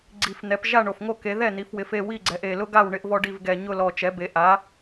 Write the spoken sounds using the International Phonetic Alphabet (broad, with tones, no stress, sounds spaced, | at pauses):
ɡ͡ǀ i˨˩ f n̪ ɛ˩˧ p ʒ a˥˨ ɳ o˨˩ f ŋ o˥˨ k e˩˧ ð ɛ˥˨ n̪ i˩˧ f w ɪ˩˧ f e˥˨ w i˥˨ ɡ͡ǀ ɛ˩˧ ʔ e˨˩ l ʊ˥ ɡ a˥˨ w ɳ ɪ˥ ʔ v ɔ˥ ɖ i˥˨ v ɡ ɛ˨˩ ɲ ʊ˥˨ l ɔ˨˩ t͡ʃ ɛ˩˥ b e˩˧ ʔ a˩˥